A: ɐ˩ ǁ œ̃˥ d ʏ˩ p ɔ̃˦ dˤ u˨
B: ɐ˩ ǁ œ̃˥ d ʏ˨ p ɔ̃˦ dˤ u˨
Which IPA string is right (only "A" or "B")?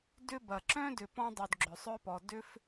B